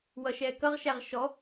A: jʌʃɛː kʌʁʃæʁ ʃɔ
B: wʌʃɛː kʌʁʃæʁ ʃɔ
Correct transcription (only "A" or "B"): B